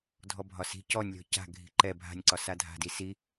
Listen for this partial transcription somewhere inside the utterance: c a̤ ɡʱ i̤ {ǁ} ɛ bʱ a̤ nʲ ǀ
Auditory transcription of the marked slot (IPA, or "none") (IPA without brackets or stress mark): ǃ